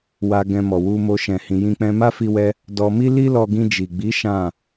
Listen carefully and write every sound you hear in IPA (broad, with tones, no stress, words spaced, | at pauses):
wa˧ɡɛ̃˧mɔ˨ wu˧mo˧ ʃɛ̃˧hĩ˧jĩ˦ k͡pɛ̃˧ma˦fi˧wɛ˧ | dɔ˧ mi˦li˦lɔ˧ɡĩ˧ d͡ʒi˨ɡ͡bi˨˦ ʃã˦˨